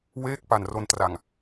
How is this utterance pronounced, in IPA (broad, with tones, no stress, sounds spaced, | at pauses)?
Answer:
w eː˥˩ k̚ p a˨˩ n r o˧ n t r a˨˩ ŋ